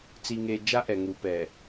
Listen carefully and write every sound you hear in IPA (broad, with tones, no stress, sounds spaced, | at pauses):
t͡s i˨ ŋ e˨ d͡ʒ a˦ ʔ ɛ˨ ŋ u˨ p ɛ˨